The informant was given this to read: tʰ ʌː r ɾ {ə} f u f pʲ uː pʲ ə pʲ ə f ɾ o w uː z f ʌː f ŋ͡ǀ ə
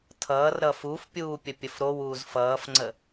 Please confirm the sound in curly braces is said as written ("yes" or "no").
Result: no